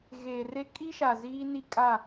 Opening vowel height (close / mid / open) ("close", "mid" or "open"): mid